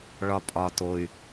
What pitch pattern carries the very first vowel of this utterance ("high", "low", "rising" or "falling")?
low